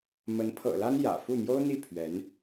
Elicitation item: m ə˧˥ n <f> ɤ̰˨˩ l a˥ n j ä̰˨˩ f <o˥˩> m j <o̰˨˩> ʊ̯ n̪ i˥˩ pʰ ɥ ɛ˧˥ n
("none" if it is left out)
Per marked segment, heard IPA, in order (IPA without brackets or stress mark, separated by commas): pʰ, u˥˩, o˥